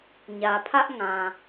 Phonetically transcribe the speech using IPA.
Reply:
ɲ ä˨ pʰ ä˦ ʔ ŋ ã˨

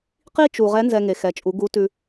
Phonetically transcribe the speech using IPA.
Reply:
q i˥ t͡ʃ u˩ ʁ ɛ˧˥ n z ɛ˧ ŋ e˩ x ɛ˩˧ t͡ʃʼ u˩˧ ɡ u˧˥ t ʉ˧

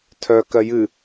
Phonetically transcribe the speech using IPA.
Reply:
tʰ œ k ɜ j ɨ

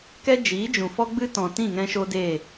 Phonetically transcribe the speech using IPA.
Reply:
k ɛ˦ d͡ʒ iː˨˦ d͡ʒ ũ˨ f ɔ˦ ɡ͡b ɨ˦ t ɔ̃˨ t ĩ˦˨ ŋ ɛ̃˧ ʃ o˦ d eː˦˨

